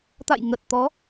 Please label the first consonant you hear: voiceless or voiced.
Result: voiceless